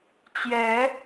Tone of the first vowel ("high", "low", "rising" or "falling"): rising